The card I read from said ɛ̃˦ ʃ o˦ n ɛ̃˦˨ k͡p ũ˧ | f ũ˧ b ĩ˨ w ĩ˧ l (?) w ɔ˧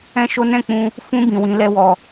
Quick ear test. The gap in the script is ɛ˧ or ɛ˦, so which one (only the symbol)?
ɛ˦